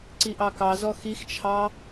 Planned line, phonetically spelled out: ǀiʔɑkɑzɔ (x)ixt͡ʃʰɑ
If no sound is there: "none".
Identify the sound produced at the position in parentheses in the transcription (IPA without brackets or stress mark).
x